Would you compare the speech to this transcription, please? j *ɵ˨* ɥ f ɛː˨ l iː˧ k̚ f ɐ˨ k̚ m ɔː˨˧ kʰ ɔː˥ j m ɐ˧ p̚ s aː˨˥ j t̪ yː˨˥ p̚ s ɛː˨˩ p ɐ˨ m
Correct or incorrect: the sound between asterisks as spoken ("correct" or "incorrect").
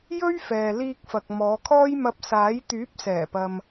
incorrect